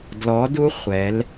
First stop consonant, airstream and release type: plain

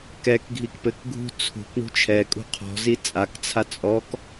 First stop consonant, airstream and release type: plain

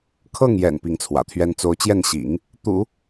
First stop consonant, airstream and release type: aspirated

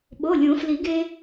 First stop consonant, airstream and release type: implosive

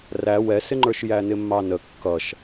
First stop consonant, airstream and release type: click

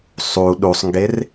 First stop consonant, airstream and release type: implosive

